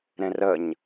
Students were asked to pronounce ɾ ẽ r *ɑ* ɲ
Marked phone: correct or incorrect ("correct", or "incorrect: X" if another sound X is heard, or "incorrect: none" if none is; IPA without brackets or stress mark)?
incorrect: ə